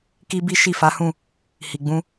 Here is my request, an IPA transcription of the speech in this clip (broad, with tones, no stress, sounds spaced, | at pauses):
k i˦ b i˦ ʃ i˦˨ f a˨˦ h ũ˦˨ | h i˨ ɡ͡b ũ˧